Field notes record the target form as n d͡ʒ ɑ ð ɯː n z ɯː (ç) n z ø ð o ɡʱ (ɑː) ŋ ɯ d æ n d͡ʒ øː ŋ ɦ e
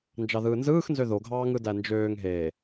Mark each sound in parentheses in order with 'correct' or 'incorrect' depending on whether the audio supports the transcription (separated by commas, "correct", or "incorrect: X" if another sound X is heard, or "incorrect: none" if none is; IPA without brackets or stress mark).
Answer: incorrect: x, correct